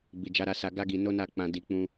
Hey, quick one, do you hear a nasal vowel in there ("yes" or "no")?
yes